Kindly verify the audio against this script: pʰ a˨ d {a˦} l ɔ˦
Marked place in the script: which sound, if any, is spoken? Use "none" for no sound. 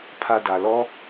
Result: a˨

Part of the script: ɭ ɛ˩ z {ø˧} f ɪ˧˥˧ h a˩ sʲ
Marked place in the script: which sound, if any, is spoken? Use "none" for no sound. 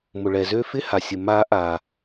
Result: ø˧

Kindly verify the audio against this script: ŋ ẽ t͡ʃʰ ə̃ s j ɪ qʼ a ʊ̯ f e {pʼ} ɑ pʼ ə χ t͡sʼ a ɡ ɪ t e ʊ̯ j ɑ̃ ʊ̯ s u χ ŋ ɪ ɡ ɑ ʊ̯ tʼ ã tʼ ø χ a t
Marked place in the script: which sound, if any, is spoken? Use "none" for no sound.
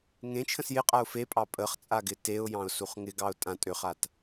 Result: pʼ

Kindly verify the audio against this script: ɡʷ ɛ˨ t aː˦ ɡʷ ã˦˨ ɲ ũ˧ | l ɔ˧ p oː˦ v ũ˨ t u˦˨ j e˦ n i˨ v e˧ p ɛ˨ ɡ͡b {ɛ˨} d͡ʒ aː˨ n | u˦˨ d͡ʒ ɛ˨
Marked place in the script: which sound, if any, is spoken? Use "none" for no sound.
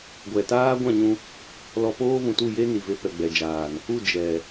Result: ɛ˨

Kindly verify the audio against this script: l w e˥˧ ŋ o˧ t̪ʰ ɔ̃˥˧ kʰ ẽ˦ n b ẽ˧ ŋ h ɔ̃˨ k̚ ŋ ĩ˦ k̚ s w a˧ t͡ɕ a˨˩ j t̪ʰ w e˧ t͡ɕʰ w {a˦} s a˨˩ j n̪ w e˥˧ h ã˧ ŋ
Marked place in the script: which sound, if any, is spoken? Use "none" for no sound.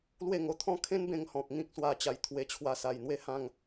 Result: a˧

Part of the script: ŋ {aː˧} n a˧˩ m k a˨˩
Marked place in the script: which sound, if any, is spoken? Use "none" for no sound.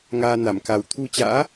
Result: aː˧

